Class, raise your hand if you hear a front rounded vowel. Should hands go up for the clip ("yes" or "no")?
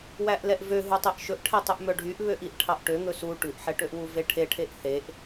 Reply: yes